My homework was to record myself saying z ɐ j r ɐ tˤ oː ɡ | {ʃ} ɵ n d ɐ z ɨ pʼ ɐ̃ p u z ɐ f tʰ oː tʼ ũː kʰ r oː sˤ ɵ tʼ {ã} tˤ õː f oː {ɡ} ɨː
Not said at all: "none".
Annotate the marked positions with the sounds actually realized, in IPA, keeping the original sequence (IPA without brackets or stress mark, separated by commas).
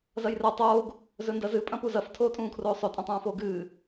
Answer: z, ɐ̃, ɡ